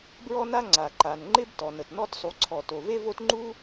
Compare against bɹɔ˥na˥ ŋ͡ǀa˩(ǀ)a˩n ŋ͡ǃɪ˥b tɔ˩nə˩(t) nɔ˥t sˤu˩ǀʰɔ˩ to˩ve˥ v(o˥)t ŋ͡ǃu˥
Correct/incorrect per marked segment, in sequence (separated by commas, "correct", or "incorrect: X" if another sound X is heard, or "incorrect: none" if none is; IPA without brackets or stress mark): incorrect: ǃ, correct, correct